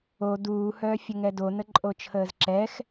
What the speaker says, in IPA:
o d uː h œː fʲ ə ŋ ɛ d o n ə ǃʼ o t͡ʃʰ əː z ǁ ɛː x

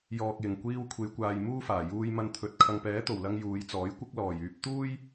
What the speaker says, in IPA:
j ɔː˨ k̚ j ɪ˨˩ ŋ kʷ iː˧ w kʷʰ e˨˧ j kʷ aː˨ j m uː˥ f aː˨˩ j uː˧ j m ɐ˧ n t̪ʰ ɵ˨ t̚ kʰ ɐ˨ ŋ p ɛː˨˥ t̪ o˨˩ w l ɐ˧ ŋ j uː˨˧ j t͡s ɔː˨˥ j kʷ ɪ˥ k̚ l ɔː˨˩ j yː˧ p̚ t̪ uː˥ j

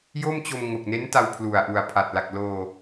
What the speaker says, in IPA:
j o˥˩ m t͡ɕ o˧ m ŋ o˨˩ k̚ n e˦˥ n t a˧ w pʰ l u˨˩ a̯ ʔ u˨˩ a̯ pʰ a˨˩ t̚ l a˨˩ k̚ l oː˧

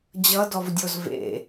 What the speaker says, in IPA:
d͡ʑ ʌ d ɔ v dʲ o z v ḛ

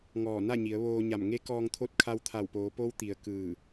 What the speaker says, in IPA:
ŋ ɔː˧˩ n a˥˨ ɲ i˩˧ ə̯ ʋ oː˧ ɲ a˧˩ m ŋ e˧˥ k ɔː˧ ŋ t̪ʰ o˧˥ t̚ kʰ a˧ w t̪ʰ a˧˩ w p oː˩˧ p o˧˥ w t̪ i˩ ə̯ k ɯː˧˩

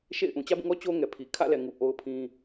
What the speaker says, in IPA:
ʃ ḛ˦˨ ɪ̯ ʔ ũ˨ t͡ɕ ä˦ b ũ˦˨ ŋ ɔ˦ t͡ɕ o˦ ŋ ɛ˨ pʰ i˨ kʰ ä̰˦˨ l ɛ˨ ŋ u˨ ʔ o˦ ʊ̯ pʰ ĩ˦

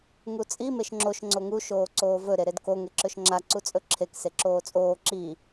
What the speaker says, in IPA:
ŋ u t͡sʼ i m e ʃ ŋ͡ǁ o ʃ ŋ͡ǀ o ŋ u ʃ oː ǀ oː v ɵ ɾ e ɾ e d k o ŋ e ǁ ɵ ʃ ŋ͡ǁ a ǀ u t͡sʼ ɵ ǁʰ e k s e ǁ oː t͡sʼ oː ǁ i

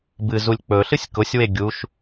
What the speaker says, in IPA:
b ɨ z u lʲ k͡p ɵ ɬ ɨ sʲ k ʊ sʲ w e ɡʲ u ʃ

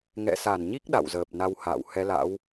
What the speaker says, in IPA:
ŋ ɛ̰˧˨ s a˧˩ n ɲ i˦˥ k̚ ɗ a̰˧˨ w z əː˨˩ p̚ n a˧ w h a̰ː˧˨ w h ɛ˨˦ l a̰˧˥ w

